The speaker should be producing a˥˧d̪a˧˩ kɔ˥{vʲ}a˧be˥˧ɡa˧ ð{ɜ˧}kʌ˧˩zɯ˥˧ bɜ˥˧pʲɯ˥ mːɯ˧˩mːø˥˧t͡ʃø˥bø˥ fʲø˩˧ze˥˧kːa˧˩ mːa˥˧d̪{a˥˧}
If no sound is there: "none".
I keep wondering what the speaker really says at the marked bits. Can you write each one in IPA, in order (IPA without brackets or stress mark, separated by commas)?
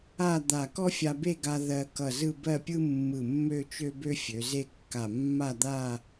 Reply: fʲ, ɜ˧, a˥˧